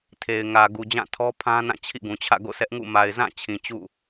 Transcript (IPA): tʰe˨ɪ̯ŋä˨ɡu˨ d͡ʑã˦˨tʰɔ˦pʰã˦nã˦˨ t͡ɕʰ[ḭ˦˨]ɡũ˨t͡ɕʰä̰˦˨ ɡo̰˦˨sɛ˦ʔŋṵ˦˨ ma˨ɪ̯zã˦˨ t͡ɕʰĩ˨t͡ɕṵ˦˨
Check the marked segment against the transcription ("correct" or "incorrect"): correct